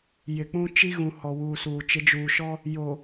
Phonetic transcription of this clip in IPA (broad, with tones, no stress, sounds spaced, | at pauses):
j ɪ˨ k͡p ũ˦ t͡ʃ i˦ ɣ ũ˨ h ɔ˨ w uː˨ s uː˨ t͡ʃ ɪ˨˦ d͡ʒ uː˨ ʃ ɔ˦ | j o˨